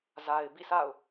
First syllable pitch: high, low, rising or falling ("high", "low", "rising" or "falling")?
low